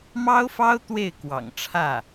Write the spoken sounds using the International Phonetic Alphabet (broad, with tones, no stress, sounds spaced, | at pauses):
m ɑ˥ ʊ̯ f ɑ˥ ʊ̯ t̪ w e˥˩ ɪ̯ k w ɑ̰˨˩ ŋ ʈ͡ʂʰ ä˥˩